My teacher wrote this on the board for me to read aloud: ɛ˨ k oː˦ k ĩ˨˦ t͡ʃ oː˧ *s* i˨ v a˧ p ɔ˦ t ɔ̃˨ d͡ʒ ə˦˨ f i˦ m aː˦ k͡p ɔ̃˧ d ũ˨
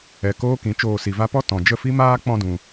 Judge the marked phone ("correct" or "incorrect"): correct